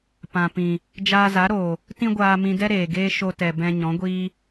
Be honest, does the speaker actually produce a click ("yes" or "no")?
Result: no